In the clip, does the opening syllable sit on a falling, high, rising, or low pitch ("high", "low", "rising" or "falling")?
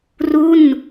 falling